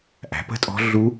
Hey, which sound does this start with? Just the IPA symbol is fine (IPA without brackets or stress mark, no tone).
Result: ʔ